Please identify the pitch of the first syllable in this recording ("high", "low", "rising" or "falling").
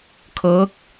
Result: rising